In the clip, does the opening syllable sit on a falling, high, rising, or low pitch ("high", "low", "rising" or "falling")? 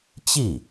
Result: falling